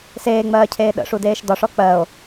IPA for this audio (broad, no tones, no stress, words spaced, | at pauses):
seːŋ͡mɜːcʰeː ɗə̰ʂudeːʃ dɒʂɔ k͡pɜo̯